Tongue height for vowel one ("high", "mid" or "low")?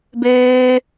mid